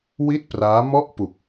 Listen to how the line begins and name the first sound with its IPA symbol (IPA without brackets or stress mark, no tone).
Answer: w